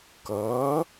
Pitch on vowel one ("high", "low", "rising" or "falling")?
rising